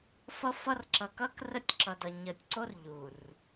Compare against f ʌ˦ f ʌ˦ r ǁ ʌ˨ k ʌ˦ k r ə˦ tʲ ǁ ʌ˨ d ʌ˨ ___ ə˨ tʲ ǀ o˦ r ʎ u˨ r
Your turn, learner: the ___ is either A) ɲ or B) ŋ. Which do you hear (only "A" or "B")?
A